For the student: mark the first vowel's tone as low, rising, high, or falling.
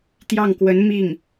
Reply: falling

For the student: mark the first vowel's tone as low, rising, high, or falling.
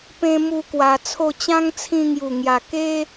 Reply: high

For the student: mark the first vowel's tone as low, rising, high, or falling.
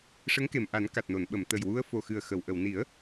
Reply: rising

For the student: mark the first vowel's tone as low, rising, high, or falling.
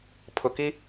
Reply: low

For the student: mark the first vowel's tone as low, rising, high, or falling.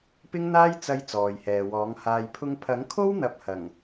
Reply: high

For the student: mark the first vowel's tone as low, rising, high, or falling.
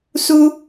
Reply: high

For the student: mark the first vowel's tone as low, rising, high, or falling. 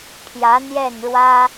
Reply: rising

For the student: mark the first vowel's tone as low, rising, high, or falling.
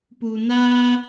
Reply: low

